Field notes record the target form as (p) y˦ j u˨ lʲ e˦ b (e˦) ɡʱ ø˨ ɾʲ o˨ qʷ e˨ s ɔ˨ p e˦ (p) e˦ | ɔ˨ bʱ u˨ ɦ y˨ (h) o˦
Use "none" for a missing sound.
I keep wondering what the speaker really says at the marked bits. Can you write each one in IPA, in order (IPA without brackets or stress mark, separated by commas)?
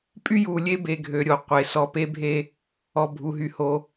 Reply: pʼ, e˨, bʱ, h